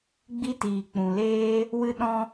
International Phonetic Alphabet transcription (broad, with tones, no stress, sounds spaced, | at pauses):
ɡ͡b i˦ t iː˨ k͡p ũ˨ l eː˦ | w ɨ˦ ɗ ɔ̃˦